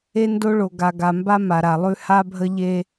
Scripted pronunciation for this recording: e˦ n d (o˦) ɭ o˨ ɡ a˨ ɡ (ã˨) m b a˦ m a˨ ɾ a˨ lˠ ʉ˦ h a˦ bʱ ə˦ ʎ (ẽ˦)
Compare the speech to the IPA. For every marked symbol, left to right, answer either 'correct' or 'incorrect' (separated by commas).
correct, incorrect, incorrect